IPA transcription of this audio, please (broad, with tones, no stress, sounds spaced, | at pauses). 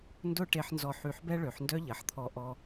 n d ʊ˥˧ ʈ e˧ ħ n z ɔ˧˩ ħ y˧˩ ħ b ɛ˥ ɭ ø˩˧ ħ n d œ˥ ʎ ɐ˩˧ ħ t̪ʰ ɔ˧ ʔ ɔ˧